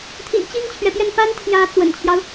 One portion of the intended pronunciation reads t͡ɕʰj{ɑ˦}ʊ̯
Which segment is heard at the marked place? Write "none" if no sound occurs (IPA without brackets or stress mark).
ɑ˦